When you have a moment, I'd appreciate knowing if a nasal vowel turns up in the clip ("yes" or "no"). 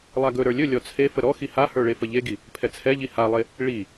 no